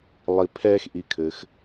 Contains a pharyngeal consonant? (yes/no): no